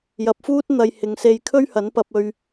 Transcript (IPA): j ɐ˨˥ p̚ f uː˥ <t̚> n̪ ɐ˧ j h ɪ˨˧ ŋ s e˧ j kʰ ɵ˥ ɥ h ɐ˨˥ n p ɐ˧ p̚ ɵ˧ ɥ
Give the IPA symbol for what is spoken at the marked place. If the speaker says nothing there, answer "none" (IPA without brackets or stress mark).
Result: t̚